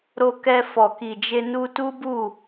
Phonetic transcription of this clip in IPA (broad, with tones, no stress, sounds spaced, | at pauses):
ɾ o˧ k ɛ˧ f ɔ˨ k i˨ d͡ʒ e˧ n u˧ t u˦ b u˦˨